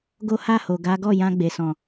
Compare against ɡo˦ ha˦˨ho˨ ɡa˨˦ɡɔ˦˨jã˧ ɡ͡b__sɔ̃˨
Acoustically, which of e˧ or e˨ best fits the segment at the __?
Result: e˨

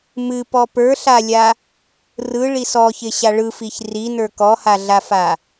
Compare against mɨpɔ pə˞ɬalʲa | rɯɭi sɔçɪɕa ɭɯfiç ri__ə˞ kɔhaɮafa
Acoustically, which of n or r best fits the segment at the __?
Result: n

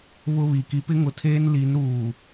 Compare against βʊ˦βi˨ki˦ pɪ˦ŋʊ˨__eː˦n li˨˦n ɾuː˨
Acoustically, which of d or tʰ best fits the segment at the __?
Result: tʰ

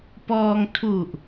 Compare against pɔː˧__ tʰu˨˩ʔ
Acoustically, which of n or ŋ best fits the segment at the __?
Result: ŋ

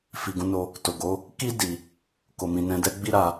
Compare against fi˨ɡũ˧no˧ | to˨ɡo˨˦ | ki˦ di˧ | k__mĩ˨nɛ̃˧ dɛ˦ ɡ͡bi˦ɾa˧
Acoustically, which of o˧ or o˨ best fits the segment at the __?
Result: o˨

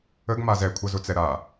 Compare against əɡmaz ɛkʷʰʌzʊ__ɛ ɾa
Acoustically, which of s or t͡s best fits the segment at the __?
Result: t͡s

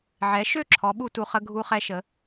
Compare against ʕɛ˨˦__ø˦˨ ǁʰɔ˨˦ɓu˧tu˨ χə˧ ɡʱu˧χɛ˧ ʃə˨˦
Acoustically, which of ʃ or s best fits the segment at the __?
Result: ʃ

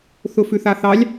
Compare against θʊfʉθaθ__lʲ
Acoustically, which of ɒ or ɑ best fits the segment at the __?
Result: ɑ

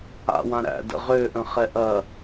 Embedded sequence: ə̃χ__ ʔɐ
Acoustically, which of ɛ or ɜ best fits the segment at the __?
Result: ɛ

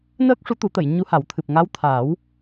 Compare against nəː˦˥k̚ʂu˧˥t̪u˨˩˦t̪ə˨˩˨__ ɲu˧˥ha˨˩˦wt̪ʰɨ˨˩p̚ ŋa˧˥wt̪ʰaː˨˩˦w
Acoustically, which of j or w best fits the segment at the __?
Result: j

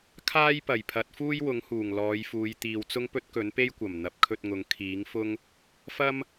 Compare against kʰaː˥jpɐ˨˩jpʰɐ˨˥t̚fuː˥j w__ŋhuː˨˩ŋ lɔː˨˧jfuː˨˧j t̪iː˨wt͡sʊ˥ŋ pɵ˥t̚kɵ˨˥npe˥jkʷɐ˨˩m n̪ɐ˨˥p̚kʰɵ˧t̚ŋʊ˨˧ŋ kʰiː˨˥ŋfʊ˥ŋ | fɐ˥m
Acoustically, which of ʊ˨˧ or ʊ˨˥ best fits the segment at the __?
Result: ʊ˨˥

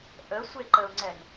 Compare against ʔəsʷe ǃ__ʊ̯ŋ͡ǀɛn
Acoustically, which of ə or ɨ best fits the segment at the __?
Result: ə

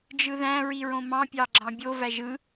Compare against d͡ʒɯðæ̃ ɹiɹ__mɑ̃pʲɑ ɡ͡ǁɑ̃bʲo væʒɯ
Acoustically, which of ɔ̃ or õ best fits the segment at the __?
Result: õ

